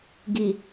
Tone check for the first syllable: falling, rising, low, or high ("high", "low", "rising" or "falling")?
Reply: low